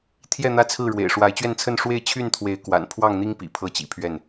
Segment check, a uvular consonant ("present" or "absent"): absent